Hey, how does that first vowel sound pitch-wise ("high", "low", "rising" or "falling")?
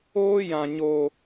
high